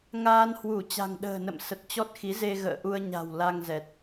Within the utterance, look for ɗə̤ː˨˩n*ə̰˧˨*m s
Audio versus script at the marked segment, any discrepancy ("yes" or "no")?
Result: no